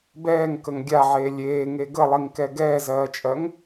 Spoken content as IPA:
b ɛː ŋ k ə ŋ ɡʲ a ʕ eː lʲ eː ŋ e ɡ ə lˠ i ŋ k ɛ ɡ ɛː z ɜː t͡ʃʼ ɜ ŋ

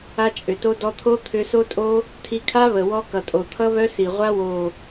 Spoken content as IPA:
a˧ t͡ʃʼ ʏ˨ t o˧ d ɔ˧ t̪ʰ o˦ t̪ʰ ʏ˧ s o˦ tʼ o˦ | tʰ i˧ kʰ a˦ β ə˨ w ɔ˧ k ʌ˨ tʼ o˨ t̪ʰ ʌ˦ β œ˦ s i˨ ʁʷ a˦ w o˨

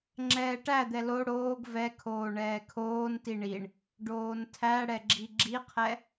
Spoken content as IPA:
ŋ͡ǁ ɛː ʈ æ d̪ ɛ l o ɽ oː ɡ v ɛ kʰ oː ɳ ɛː kʰ oː n t i ɳ i ɳ | ɖ oː n tʰ æ ɽ ɛ ɡ͡ǁ i ɡ͡ǁ i qʰ ɛ

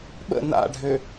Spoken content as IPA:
ɓ ə̰ n a̰ ɖʱ ø

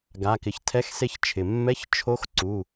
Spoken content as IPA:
ɡ a˩˧˩ k ɪ˩˧˩ ç tʰ ɛ˧˥˧ x s e˧ ç t͡ʃʰ ɪ˩ mː ɛ˧˥˧ ç t͡ʃʰ o˧˥ x ǀ u˩˧˩

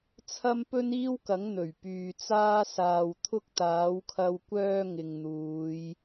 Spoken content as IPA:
t͡sʰ ɐ˥ m p ɵ˥ n iː˥ w k ɐ˨˥ ŋ n̪ ɵ˨˩ ɥ p yː˨ t͡s aː˥ s aː˨ w t̪ʰ ʊ˥ k̚ t̪ aː˨˥ w kʰ ɐ˧ w kʷ œː˧ ŋ ɪ˨ ŋ n̪ uː˨˧ j

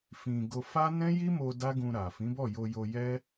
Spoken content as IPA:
f ĩ˧ ɡ o˧ f a˦ n ɛ̃˦ j i˦ m o˧ d a˦ ɡ ũ˧ ɾ a˨ f ĩ˨˦ b ɔ˦˨ j o˧ j o˧ j ɛ˦

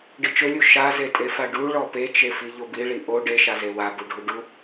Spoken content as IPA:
ɖ i t͡ʃ ɵ lʲ u ʃ a z e tʼ e f a ɖ u ɭ ɔ p e t͡ʃ e f i ʎ o b i ɭ i ʔ o ɖ e ʃ a z e w a b u ɖʱ u ɖ u

